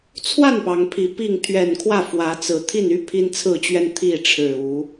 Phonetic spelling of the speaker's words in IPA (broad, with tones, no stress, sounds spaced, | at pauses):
t͡sʰ w a˥˨ n p ɑ˨˦ ŋ pʰ i˨˩ p i˥˨ ŋ t̪ʰ ɥ ɛ˨˩ n kʰ w ä˥˨ f w ä˨˦ t͡s ɹ̩˨˩ t̪ʰ i˥˨ n y˦ pʰ i˦ n t͡sʰ ɹ̩˥˨ t͡ɕ ɥ ɛ˦ n t̪ʰ i˥˨ ʈ͡ʂʰ ɻ̩˨˩ u˨˦